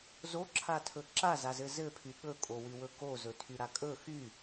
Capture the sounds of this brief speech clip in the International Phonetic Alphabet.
z o ǁʰ a tʰ ɵ ǁ a z a z ɘ z ɘ pʰ y ɠ ɵ kʼ o w y w ɵ k o z ɵ tʰ y ɾ a kʼ ɵ x y

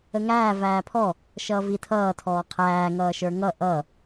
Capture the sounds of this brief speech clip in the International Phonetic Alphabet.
ə ŋ æː v æː pʰ ɔ | ʃ ʌː v i tʰ ʌː tʰ ɔː qʰ æː ŋ ʌː ʃ ə˞ ŋ ʌ ʔ ʌ

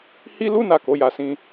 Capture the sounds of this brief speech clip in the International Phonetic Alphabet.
h i˦ l u˦ n a˦˨ k o˨˦ j a˧ s ĩ˧

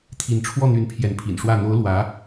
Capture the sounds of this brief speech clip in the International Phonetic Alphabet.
t̪ʰ i˥˧ n ʈ͡ʂʰ w ɔ˥˩ n̪ y˧˥ n pʰ j ɛ˧˥ n pʰ ḭ˨˩ n ʂ w ä˥˩ n̪ o˧˥ ʊ̯ l w ä˧˥

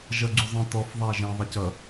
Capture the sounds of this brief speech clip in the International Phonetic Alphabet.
ʒ ʌ ɡ͡ǀ u zˤ ĩ t ɔ f ðˤ æ ʒ ɛ̃ ðˤ ɛ c ʌ

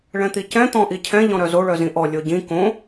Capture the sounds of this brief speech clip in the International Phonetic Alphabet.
ɭ ɛ̃ t̪ i c ɛ̃ t̪ ɔ̃ ʔ i cʰ ɛ̃ ʎ ɔ̃ ɾ œ z o ɭ œ z ĩ ʔ ɔ lʲ o ɟ ĩ k õ

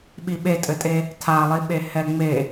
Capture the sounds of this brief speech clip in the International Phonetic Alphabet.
ɓ i ɓ e tʼ ɘ tʼ e | tʰ a lˠ i ɓ e h ɛ ŋ͡m e

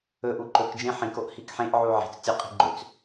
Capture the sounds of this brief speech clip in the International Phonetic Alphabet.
ɵ ʔ u ǃ ɵ k d͡ʒ ẽ ħ ĩ k o ʔ h i k ħ ẽ ʔ ʕ u ʕ i̤ t͡s tʲ ɵ qʼ i̤ ɡ͡ǃ ø t͡s

